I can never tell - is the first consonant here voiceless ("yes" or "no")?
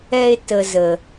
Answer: yes